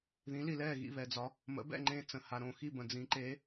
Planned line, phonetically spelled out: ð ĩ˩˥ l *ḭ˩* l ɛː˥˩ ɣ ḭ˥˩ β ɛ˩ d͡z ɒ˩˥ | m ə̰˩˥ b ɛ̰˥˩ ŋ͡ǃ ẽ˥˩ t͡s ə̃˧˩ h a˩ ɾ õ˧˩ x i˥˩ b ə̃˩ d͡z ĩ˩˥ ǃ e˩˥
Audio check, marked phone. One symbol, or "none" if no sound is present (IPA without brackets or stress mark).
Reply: i˩